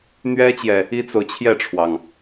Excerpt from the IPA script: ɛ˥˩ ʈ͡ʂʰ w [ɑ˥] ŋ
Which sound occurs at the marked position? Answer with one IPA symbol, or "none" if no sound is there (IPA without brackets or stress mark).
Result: ɑ˩